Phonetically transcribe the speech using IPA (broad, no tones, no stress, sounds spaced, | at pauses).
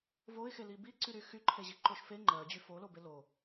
v o ɪ̯ x e l i b i ǀ y ɾ y x y ǃʰ e ʑ i ǃ o ʃ f e ŋ͡ǃ ɜ d͡ʑ y f o l o b e l o